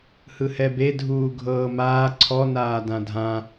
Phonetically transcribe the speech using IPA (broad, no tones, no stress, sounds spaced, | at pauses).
h ɯ h ɛ b e dʱ uː ɡʱ ɤː m aː ǀʰ ɔ n aː d ã dʱ ã